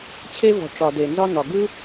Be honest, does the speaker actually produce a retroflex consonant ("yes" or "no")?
yes